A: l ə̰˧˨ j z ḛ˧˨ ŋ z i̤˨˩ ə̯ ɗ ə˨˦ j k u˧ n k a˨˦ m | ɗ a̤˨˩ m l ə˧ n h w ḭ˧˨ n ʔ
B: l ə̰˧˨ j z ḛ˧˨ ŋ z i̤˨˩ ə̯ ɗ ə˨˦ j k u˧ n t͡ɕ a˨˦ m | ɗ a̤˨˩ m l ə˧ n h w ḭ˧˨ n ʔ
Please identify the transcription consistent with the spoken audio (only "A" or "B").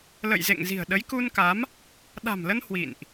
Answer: A